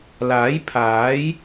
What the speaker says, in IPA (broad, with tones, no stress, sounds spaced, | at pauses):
l aː˨˥ j pʰ aː˨˥ j